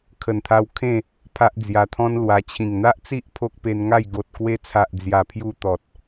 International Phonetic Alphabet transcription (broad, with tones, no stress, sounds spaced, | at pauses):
kʰ ə˨˩ n t̪ʰ a˧ w kʰ ẽ˥˧ | pʰ a˦ ʔ d͡z j a˧ t̪ʰ ɔ̃˦ n l w a˧ t͡ɕʰ ĩ˨˩ ŋ n̪ a˦ ʔ t͡s i˦ ʔ pʰ o˦ k̚ p e˧ n ŋ a˥˧ j ɡ o˨ t̚ k w e˧ t͡sʰ a˨ ʔ d͡z j a˨˩ pʰ j u˧ t̪ ɔ˨ t̚